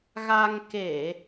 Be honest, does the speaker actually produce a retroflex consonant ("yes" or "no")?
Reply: no